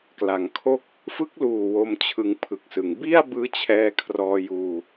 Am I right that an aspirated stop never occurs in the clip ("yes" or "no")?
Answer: no